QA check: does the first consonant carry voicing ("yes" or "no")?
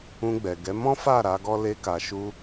yes